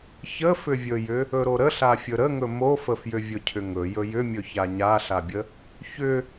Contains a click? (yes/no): no